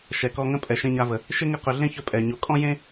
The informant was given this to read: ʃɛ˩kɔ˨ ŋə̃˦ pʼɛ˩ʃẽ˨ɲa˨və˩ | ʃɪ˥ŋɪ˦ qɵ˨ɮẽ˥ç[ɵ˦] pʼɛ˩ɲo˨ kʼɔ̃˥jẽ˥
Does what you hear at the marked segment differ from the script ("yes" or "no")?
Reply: no